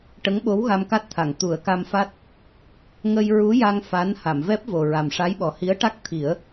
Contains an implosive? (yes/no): yes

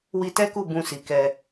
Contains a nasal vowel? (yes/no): yes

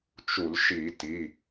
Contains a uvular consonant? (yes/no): no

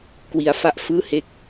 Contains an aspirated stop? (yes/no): no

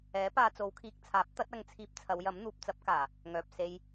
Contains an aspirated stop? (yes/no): yes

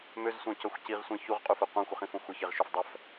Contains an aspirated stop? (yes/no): no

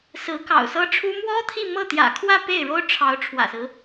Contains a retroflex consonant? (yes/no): yes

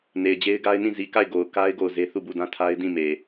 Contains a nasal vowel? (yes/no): yes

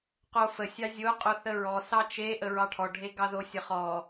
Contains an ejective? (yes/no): yes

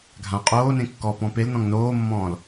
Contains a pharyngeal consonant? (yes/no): no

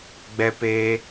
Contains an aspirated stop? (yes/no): no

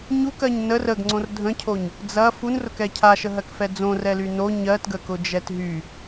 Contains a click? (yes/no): yes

